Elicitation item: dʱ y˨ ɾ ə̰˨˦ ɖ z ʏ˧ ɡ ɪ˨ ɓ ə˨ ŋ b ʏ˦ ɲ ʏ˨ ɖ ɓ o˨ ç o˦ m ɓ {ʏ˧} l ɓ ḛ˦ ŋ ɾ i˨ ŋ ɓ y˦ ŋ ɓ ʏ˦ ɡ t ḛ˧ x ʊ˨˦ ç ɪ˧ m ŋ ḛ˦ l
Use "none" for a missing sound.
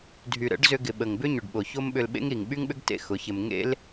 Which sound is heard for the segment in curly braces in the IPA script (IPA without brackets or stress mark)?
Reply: ʏ˧